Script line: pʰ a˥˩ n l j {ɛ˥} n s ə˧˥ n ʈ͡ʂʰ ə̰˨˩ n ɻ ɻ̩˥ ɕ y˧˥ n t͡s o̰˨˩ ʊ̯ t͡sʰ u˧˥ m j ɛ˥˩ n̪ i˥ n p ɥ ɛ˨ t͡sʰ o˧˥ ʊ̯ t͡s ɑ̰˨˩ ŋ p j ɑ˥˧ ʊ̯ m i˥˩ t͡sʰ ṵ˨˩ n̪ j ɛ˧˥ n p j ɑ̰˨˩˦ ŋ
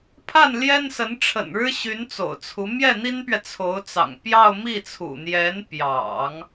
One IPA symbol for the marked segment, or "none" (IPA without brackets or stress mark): ɛ˥